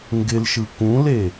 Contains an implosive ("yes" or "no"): no